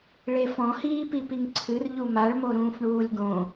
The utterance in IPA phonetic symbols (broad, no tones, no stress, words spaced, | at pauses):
ɭefɔ̃hiːpi piŋǀʰɨr ʎumaɭmo ɾũːfɳuːlʲɡõ